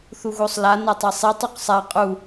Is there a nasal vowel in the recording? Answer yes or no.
no